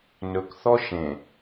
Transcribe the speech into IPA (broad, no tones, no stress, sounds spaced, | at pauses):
n ɵ k θ ɔ ʃ ẽ